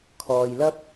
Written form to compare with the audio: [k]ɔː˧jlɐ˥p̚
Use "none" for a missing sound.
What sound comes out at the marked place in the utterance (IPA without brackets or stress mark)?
kʰ